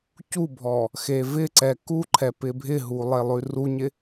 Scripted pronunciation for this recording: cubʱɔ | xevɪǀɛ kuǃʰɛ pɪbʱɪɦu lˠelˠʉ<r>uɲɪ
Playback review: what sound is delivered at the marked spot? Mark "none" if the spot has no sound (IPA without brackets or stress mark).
r